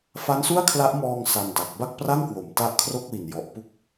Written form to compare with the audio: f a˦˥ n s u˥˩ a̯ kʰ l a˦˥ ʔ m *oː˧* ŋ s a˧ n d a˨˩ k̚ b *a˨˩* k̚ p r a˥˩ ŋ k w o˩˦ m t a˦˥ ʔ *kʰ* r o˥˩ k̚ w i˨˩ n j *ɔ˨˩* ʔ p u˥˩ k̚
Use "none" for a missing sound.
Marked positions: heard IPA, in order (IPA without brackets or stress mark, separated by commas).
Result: ɔː˧, a˥˩, kʰ, ɔ˨˩